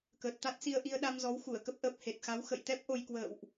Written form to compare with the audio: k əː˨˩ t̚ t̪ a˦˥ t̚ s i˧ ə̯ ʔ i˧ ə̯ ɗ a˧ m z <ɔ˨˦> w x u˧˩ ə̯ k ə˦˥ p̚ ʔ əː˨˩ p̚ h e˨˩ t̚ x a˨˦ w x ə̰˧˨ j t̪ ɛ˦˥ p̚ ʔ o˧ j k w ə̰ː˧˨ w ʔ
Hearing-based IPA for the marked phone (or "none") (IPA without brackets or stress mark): ɔ˨˦